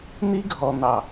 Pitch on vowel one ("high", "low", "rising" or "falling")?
high